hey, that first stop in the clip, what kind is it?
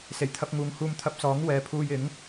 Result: aspirated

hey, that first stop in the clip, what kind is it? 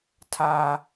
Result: aspirated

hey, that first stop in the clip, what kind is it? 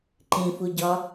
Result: click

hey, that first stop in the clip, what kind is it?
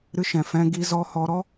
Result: plain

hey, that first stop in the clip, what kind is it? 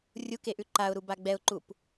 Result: plain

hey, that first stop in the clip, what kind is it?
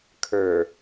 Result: aspirated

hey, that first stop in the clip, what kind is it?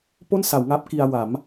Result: plain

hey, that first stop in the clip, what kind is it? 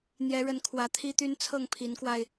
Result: aspirated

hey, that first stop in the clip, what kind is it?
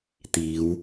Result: plain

